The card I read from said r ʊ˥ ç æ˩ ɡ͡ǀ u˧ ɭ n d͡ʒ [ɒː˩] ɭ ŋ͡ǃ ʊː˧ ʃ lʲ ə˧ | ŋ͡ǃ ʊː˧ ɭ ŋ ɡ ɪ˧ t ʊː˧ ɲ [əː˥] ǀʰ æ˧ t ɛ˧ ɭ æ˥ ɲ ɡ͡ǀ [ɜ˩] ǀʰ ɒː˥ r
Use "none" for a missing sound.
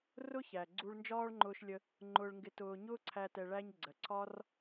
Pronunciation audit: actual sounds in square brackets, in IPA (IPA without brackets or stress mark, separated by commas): ɒː˥, ʊː˥, ɜ˩